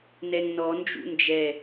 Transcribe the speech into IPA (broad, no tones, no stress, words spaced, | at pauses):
nɛŋnɔ nd͡ʒṵnd͡ʒɛ